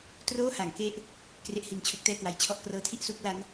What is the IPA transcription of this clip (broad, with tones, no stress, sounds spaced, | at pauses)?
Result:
t r oː˥˩ h a˩˦ ŋ k e˦˥ ʔ | k r e˦˥ ʔ h i˧ n t͡ɕʰ o˦˥ k̚ t ɛː˥˩ k w a˧ j t͡ɕʰ ɔ˥˩ ʔ k r ɤː˦˥ tʰ i˥˩ ʔ s u˥˩ k̚ l a˦˥ n